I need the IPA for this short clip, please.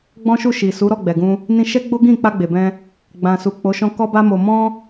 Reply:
ɡ͡b ɔ̃˦ ʃ u˦˨ ʃ i˨ s u˨˦ ɾ ɔ˦˨ ɡ͡b ɛ˨ ɡ ũ˧ | n ĩ˧ ʃ ɛ˦ ɡ͡b o˦ ɡ ĩ˦˨ k͡p a˧ ɡ͡b e˨ b ɛ̃˧ | ɡ͡b ã˨ s u˨ k͡p o˨˦ ʃ ɔ̃˧ k ɔ˦ b a˦ m o˧ m ɔ̃˦

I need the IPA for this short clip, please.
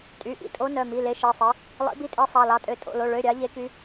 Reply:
tʼ y˩˧˩ ʔ ḭ˨˦ tʼ o˨˦ n œ˩˧˩ m i˩˧˩ l e˨˦ ʃ e˩˧˩ sˤ e˨˦ | lˠ ḭ˨˦ b i˨˦ tʼ e˨˦ sˤ ɑ˩˧˩ l ɑ˨˦ tʼ ø˩˧˩ tʼ o̰˩˧˩ l o˩˧˩ ɭ ø˩˧˩ ɾʲ ɑ˨˦ ʎ e˨˦ k y˨˦

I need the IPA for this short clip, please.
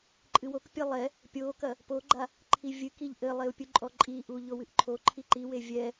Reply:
ǃʼ ɨ w o k pʲ ɘ lˠ ɛ | pʲ o k ɐ | p o ɡ͡ǃ a | ǃʰ i vʲ ɨ k i ʎ ʔ ɘ lˠ e u̯ pʲ u ǃʼ ɔ ǃʼ i ʔ u ʎ o w ɨ ʔ ǃʰ o ǃʰ i ǃ i w e vʲ ɛ

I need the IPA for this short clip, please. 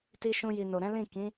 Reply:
t i˧ ʃ ũ˧ j i˨ n o˨ ɾ ɛ̃˨˦ l ĩ˦˨ k ĩ˨˦

